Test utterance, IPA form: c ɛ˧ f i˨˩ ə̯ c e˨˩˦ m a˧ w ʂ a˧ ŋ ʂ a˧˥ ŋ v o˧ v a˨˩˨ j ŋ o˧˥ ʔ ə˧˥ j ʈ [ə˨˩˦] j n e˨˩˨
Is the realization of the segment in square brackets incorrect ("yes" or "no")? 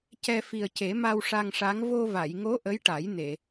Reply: yes